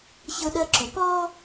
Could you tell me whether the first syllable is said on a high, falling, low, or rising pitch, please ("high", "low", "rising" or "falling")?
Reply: high